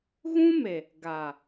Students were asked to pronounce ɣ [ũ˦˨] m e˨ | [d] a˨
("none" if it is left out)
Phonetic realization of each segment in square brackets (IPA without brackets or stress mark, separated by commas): ũ˦, ɡ